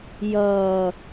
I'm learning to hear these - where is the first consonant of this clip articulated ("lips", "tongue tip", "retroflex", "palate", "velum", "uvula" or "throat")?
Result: palate